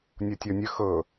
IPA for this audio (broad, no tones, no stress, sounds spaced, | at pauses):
nʲ o tʲ ɔ nʲ ə x ɤ